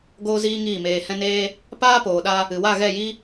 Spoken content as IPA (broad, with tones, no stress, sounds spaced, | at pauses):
ɡ oː˦ z iː˦ ŋ iː˦˨ m eː˧ h ɛ̃˦ n eː˦ | p aː˦ p oː˨ ɗ a˧ | ɨ˨ w a˦˨ ɣ ɛ˦˨ j i˦